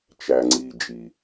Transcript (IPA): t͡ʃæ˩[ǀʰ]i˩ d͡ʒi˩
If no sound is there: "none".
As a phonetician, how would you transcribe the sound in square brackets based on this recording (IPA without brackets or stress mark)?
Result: ŋ͡ǀ